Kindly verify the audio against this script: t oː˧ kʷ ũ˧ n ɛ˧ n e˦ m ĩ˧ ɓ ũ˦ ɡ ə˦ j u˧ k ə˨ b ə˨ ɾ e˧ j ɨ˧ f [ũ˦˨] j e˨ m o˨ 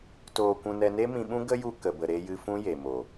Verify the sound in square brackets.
incorrect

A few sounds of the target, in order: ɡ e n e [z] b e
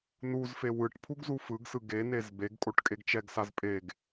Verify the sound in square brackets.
correct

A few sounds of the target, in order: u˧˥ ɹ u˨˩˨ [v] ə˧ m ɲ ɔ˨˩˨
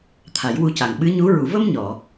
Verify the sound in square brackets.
correct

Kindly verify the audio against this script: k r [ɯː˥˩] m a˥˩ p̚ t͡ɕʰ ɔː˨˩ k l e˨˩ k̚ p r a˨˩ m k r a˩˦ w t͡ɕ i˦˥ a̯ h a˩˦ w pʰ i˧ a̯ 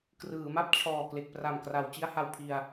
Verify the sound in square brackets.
incorrect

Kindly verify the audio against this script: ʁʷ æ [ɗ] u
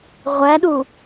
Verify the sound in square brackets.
correct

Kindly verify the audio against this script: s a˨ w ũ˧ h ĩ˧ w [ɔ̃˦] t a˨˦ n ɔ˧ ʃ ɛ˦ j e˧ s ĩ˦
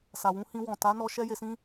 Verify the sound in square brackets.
incorrect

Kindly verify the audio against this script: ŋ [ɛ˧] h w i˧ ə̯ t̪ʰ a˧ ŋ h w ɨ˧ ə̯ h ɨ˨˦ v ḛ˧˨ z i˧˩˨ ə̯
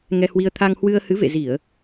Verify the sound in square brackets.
correct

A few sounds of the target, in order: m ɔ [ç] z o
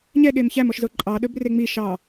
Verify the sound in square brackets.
incorrect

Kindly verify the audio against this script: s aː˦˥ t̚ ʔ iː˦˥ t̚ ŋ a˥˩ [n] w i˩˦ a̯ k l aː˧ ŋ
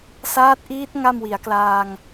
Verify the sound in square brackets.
incorrect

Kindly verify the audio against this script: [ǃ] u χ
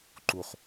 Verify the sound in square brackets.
correct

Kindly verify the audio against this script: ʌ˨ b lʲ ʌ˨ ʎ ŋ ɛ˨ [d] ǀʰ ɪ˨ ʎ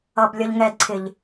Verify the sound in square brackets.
correct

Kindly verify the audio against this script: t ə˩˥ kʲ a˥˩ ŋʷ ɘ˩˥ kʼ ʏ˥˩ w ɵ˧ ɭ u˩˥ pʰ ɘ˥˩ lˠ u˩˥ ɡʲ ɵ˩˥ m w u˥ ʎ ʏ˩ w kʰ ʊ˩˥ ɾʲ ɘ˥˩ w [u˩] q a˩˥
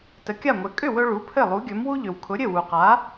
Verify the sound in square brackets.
correct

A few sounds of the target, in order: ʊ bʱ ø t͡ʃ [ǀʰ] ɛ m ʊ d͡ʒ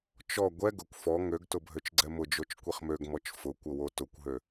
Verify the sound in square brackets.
incorrect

